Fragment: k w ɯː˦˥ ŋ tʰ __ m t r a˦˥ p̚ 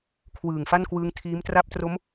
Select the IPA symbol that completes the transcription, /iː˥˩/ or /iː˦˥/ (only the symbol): iː˦˥